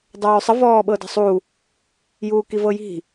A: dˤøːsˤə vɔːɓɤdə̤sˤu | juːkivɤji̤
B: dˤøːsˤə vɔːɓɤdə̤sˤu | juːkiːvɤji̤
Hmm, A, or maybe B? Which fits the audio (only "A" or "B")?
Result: A